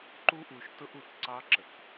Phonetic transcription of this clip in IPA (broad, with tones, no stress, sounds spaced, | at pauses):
ǃ u˦ ʔ u˨ ʃ t ʊ˦ ʔ u˨ t ǀ ɑ˦ ǁ ə˨ k